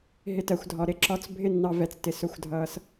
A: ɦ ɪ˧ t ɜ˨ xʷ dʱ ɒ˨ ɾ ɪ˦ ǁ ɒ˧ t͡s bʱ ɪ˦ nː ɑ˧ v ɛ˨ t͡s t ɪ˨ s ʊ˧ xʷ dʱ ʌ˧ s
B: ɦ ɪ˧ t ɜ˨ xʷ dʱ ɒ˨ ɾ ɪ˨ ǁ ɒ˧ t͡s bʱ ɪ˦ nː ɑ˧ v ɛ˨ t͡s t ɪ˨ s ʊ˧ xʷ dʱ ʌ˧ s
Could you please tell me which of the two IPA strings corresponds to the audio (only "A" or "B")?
A